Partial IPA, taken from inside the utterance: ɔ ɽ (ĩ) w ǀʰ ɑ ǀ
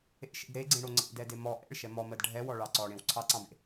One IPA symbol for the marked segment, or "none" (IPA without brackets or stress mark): ẽ